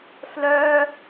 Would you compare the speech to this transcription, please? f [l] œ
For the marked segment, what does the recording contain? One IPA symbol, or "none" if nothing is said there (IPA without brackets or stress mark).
l